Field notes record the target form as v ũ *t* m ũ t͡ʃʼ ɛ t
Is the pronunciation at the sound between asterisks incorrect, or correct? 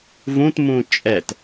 correct